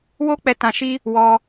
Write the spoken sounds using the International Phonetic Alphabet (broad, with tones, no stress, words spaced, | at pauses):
wo˦k͡pɛ˧ tã˧ʃi˦ | wɔ˧